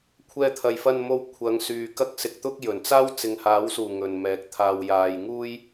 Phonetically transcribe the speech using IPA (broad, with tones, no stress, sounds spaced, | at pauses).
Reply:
kʷʰ ɛː˧ t̪ʰ ɐ˨ j f ɐ˧ n m o˧ w kʷʰ ɐ˨˧ ŋ s yː˨ k ɐ˥ k̚ s ɪ˧ k̚ t̪ ʊ˥ k̚ j ɵ˨˩ n t͡s aː˥ w t͡s ɪ˨ ŋ h aː˨˥ w s uː˨˩ ŋ ɵ˨ n m ɛː˨˥ k̚ t̪ʰ aː˧ w j aː˧ j ŋ uː˥ j